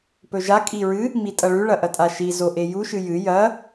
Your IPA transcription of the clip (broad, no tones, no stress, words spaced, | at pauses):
pɵʒa kʼiɹɨ | mitʼɐɭʉ ɭɐʔɐtʼaʃi zoʔeju ʃɨjɨ jɐ